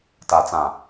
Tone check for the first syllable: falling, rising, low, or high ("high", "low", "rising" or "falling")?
low